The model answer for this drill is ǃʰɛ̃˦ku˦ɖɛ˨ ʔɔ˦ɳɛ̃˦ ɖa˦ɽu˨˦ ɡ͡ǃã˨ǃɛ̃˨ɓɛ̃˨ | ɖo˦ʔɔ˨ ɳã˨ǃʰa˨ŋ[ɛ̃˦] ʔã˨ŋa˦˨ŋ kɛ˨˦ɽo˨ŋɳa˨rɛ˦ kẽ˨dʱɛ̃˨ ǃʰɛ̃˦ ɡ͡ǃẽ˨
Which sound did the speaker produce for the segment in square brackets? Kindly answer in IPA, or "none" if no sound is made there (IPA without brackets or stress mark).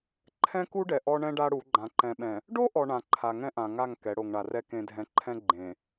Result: ɛ̃˦